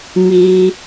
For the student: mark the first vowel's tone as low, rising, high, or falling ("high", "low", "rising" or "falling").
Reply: high